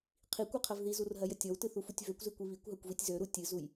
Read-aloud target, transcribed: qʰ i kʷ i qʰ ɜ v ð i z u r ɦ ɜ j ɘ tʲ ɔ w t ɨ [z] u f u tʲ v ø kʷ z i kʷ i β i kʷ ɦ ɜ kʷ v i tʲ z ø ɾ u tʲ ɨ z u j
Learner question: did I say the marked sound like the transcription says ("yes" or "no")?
no